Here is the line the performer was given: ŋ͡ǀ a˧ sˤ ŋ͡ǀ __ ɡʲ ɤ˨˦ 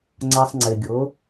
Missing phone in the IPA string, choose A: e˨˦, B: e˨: B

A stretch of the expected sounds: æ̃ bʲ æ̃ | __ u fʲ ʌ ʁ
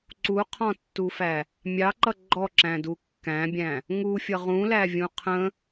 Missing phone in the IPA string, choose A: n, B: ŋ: B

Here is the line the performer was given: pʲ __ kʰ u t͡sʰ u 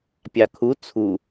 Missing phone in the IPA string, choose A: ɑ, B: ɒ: A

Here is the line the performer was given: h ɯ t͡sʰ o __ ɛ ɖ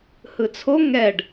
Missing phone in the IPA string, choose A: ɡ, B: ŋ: B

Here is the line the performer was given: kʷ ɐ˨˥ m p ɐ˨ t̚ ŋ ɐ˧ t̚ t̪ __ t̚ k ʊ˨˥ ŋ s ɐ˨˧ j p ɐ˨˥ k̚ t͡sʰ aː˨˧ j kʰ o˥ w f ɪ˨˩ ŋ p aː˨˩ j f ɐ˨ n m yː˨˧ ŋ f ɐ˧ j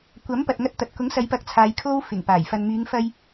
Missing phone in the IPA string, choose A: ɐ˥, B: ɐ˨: B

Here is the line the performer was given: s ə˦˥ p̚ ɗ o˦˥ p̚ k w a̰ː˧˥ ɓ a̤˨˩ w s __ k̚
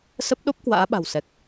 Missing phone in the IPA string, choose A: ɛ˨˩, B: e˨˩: A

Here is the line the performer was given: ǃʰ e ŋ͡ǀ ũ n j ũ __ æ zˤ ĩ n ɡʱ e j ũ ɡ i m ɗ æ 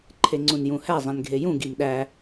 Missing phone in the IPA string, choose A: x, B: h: B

